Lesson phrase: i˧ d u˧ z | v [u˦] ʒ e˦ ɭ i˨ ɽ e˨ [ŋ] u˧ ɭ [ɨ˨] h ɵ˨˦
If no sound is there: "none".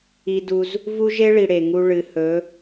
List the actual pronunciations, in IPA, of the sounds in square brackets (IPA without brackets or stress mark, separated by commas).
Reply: u˦, ŋ, ɨ˨